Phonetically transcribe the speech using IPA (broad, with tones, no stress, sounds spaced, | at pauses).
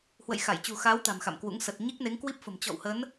h w ə̰˧˨ j x a˧˩ j t͡ɕ ṳ˨˩ x aː˨˦ w t̪ a̤˨˩ m x a̰˧˨ m k w ṵ˧˥ ŋ s ə˨˩ t̚ ɲ i˦˥ k̚ n e˨˦ ŋ k w i˦˥ p̚ f ə̤˨˩ m t͡ɕ ɔ̰˧˨ w h ə˨˦ n